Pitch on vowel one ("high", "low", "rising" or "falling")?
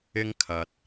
high